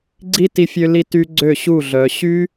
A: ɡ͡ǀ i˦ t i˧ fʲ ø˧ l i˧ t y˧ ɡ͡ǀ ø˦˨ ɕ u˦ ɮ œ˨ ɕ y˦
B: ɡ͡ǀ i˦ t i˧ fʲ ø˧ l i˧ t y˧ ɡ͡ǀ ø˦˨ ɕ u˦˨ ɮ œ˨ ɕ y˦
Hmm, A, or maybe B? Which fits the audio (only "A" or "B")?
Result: B